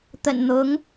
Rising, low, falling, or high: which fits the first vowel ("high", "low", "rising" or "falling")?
low